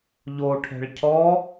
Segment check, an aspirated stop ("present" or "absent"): present